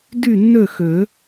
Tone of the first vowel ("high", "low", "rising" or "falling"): falling